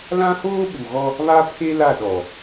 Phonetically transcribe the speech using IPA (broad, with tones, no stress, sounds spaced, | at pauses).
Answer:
l ã˦ h oː˦ ɓ u˨ ɣ ɔ˦ | β a˦ pʰ e˦ l a˦˨ ɗ ɔ˨